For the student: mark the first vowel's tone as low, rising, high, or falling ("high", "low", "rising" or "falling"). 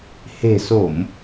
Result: low